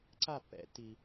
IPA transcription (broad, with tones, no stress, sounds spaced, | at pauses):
ǀ a˥˨ pː ɛ̰˨˩˦ tː i˩